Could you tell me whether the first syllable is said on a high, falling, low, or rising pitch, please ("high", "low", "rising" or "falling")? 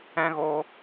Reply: high